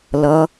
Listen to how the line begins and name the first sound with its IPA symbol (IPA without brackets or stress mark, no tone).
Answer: l